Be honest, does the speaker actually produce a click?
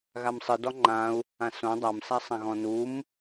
yes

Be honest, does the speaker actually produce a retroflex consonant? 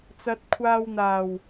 no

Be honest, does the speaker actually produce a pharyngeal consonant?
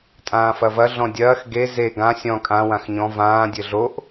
no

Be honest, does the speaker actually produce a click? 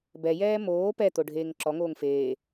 yes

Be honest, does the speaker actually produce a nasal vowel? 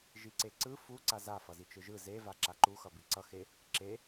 no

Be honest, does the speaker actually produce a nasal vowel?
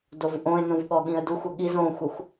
yes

